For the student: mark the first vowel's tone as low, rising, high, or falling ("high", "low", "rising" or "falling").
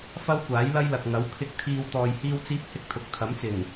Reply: high